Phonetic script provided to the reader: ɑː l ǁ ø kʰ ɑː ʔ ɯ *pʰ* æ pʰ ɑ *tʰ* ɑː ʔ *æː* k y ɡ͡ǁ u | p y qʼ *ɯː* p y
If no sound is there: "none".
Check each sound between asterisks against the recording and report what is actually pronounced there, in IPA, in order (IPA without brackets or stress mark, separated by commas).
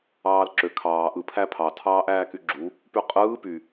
pʰ, tʰ, æː, ɯː